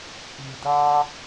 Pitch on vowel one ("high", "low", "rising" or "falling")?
low